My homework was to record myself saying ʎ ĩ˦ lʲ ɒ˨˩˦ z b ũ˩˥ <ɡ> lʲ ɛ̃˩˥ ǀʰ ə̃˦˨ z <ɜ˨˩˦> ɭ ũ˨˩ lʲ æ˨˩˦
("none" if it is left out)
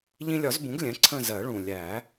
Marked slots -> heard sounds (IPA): ɡ, ɜ˨˩˦

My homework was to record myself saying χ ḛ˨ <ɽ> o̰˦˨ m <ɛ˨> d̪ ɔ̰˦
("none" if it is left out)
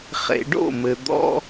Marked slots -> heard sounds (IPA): ɖ, ɘ˨

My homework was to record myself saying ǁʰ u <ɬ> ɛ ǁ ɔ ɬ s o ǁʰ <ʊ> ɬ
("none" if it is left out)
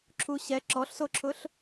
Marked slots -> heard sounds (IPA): ɕ, ʊ

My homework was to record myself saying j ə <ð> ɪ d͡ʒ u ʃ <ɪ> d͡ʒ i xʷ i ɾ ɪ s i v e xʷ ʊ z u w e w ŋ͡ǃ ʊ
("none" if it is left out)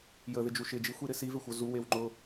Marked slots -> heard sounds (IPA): ð, ɪ

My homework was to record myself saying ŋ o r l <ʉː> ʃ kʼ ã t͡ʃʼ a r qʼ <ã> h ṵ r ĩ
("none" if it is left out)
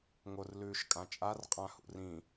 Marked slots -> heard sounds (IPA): ʉː, ã

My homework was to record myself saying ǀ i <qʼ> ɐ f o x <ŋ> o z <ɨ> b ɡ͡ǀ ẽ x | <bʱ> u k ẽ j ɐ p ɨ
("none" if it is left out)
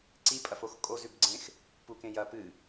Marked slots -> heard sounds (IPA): pʼ, kʼ, ʉ, p

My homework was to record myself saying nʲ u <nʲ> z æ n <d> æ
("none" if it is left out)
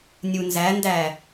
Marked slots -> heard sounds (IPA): n, d

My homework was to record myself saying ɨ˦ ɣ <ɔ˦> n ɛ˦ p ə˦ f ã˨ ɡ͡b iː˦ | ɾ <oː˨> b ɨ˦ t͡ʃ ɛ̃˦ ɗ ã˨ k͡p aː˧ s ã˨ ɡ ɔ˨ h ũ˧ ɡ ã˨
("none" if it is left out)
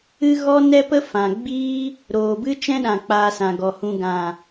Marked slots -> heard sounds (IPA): ɔ˦, oː˨

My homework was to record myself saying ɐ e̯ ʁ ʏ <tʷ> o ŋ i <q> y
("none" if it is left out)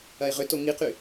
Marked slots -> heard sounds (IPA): t, q

